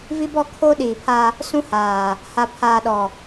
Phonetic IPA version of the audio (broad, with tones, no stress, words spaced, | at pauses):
vi˦bɔ˦˨kʰo˦ ɗiː˨pʰa˦ | sũ˦haː˨ | ha˨pʰaː˨ɗɔ˨